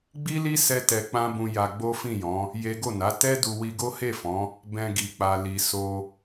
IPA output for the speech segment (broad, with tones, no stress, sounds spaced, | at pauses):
ɡ͡b i˦ l i˦ s ɛ˦ t ɛ˧ k͡p ã˦ b ũ˧ j a˧ ɡ͡b o˦ f ĩ˦˨ j ɔ̃˨˦ | j e˦ ɡ o˦˨ n a˨˦ t ɛ˦ d u˧ w i˧ ɡ o˦ h e˦˨ f ɔ̃˨˦ | b ɛ̃˧ ɡ i˨ k͡p a˨ l i˨ s o˧